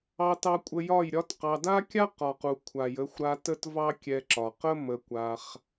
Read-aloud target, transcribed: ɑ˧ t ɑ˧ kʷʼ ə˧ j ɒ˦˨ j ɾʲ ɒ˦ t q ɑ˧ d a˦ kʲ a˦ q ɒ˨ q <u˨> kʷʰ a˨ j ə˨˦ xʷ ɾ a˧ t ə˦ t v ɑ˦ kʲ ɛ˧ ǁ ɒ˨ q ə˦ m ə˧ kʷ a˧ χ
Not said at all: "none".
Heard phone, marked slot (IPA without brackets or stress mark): u˨